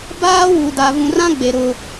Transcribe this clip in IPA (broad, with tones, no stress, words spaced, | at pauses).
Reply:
baː˦wu˨da˨ vũ˨rã˦ɡ͡be˨ ɾʊ˦